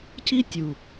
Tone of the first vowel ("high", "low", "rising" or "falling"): high